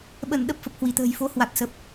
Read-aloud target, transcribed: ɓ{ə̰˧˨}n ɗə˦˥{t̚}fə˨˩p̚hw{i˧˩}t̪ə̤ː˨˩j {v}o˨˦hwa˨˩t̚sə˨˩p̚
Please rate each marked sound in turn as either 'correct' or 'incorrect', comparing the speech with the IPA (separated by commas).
incorrect, incorrect, correct, incorrect